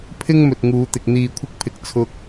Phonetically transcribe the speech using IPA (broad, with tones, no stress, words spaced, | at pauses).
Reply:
pʰɪ˥ŋ mɵ˨t̚ŋuː˨˧t̪ɪ˨k̚ n̪iː˨kʷʰɪ˧k̚pʰɪ˨k̚ t͡sʰʊ˧k̚